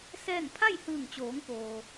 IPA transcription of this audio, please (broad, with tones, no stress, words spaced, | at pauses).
sɛː˥˨ŋ pʰa˥˨jhɯː˧˩ŋt͡ɕoː˩˧ŋ poː˩